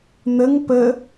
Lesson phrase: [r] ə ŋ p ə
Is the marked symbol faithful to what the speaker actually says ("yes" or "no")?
no